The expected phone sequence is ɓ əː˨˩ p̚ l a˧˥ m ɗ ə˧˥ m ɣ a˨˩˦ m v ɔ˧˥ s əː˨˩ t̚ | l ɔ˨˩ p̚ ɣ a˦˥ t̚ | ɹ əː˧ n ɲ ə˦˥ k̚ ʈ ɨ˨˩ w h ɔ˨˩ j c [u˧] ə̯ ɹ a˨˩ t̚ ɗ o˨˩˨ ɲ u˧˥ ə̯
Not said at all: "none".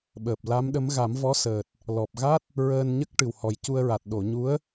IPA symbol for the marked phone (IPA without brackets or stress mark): u˧